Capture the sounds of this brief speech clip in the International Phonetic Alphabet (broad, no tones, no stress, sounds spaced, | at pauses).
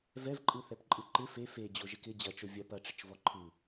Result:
v ɛ v ǃʼ ɯ θ ɛ p ǃʼ ɯ ǃ ɪ f e f e d͡ʑ o ʒ ɪ k ɪ d͡ʑ ɐ t͡ʃ o vʲ ɐ p ɐ ʈ͡ʂ ɪ t͡ʃ v ɔ ǃʰ ɯ